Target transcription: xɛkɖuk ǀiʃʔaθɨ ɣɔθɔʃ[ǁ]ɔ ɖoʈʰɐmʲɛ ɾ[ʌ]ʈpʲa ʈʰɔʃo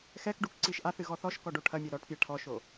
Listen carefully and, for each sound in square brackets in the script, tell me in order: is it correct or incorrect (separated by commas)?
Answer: incorrect, incorrect